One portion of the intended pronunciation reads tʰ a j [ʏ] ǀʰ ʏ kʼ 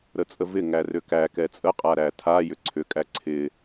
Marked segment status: correct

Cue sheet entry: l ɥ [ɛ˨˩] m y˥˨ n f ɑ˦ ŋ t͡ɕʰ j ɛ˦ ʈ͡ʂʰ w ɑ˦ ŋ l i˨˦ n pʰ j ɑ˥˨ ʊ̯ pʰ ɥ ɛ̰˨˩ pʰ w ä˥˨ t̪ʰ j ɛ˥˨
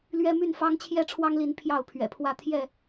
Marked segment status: incorrect: ɛ˦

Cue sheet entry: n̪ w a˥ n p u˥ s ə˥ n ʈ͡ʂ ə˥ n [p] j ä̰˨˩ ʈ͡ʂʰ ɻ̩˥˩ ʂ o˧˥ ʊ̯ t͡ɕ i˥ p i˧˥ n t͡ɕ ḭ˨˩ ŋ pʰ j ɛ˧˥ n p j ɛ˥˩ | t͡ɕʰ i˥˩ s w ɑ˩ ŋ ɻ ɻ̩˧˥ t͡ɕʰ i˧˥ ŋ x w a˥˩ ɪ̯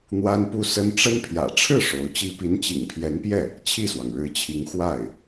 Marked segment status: incorrect: pʰ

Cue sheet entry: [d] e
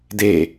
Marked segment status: correct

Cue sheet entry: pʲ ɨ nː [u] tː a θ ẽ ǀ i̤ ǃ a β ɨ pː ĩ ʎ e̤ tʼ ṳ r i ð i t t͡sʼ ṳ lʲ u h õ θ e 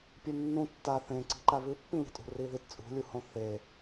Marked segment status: incorrect: ũ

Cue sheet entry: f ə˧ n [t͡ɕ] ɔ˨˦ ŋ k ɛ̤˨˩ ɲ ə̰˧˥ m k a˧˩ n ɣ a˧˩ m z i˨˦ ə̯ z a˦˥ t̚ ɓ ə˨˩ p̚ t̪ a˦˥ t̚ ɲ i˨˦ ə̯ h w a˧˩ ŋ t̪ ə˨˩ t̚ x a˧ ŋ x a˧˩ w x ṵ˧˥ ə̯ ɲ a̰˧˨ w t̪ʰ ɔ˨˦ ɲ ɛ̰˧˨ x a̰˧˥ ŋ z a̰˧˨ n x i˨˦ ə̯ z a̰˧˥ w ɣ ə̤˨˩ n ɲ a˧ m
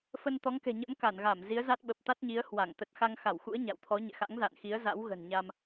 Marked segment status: incorrect: t̪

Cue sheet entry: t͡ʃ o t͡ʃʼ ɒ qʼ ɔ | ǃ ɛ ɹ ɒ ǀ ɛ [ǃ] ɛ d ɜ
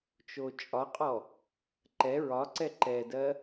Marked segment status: correct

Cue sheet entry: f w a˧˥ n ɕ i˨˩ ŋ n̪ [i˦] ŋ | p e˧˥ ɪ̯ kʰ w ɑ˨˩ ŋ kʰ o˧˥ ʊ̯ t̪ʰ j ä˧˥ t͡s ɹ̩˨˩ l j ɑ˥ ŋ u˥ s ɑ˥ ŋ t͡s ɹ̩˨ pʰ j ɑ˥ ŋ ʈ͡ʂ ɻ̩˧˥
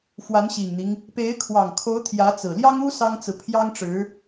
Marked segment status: correct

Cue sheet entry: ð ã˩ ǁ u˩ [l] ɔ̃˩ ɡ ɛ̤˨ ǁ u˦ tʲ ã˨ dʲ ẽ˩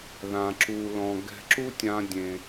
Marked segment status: correct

